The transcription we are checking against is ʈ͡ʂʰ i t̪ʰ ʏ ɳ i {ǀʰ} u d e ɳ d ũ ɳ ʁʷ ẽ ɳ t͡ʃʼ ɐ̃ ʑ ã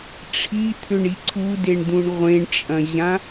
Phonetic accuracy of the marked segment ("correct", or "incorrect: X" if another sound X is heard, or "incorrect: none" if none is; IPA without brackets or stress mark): correct